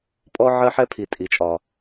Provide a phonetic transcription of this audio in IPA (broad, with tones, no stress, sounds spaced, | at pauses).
pʼ ɔ˥ ʕ ɜ˥ ħ ɛ˥ pʰ i˩ tʼ i˩ t͡ʃʼ ɒ˩